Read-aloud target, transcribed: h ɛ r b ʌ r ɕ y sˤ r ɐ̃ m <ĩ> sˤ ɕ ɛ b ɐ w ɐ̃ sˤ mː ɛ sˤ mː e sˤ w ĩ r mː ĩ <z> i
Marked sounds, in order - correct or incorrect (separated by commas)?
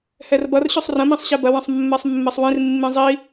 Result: correct, incorrect